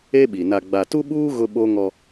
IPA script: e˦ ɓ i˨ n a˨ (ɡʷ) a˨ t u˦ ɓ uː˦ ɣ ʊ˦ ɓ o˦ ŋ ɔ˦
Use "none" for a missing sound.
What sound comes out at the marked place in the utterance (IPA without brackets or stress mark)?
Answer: ɡ͡b